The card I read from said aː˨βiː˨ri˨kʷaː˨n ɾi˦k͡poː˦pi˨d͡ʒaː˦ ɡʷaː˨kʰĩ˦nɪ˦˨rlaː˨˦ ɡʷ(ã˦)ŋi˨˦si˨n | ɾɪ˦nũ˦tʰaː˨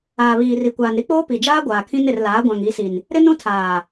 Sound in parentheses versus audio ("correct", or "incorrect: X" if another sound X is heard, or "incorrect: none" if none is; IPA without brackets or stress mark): incorrect: ã˨